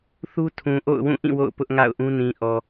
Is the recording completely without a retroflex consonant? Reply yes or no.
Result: yes